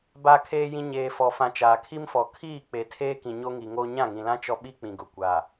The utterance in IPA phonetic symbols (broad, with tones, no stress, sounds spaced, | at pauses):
b a˨ kʰ eː˨ j ĩ˨ ɲ eː˨ f ɔ˨ f ã˨ t͡ʃ aː˨ kʰ i˦ m f ɔ˨ kʰ iː˦˨ k͡p e˨ tʰ eː˦ k ĩ˨ ɲ o˦ ŋ i˨ ŋ oː˦ ɲ ã˦˨ ŋ ĩ˨ l ã˦ t͡ʃ ɔ˦ ɓ i˦ k͡p ĩ˨ ɡ ʊ˨ kʷ a˨